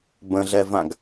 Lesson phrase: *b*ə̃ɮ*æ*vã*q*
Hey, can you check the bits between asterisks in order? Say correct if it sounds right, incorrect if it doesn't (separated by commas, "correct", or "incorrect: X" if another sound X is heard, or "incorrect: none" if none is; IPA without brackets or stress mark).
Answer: correct, incorrect: ɛ, incorrect: ɡ